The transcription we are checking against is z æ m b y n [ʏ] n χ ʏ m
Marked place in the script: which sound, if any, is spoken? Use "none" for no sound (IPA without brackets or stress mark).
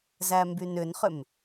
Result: ʏ